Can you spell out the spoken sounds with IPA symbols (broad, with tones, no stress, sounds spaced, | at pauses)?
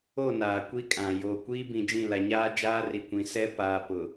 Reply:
o˦˨ n aː˨ kʷ i˦ kʼ ã˨ j oː˨ kʷ iː˦ b ĩ˨ d͡ʒ ĩ˦˨ l a˨ ɲ aː˦ d͡ʒ aː˦ r i˨ kʷ ĩ˨ s ɛ˦ p aː˨ p ʊ˨